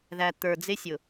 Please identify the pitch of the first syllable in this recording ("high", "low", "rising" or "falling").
low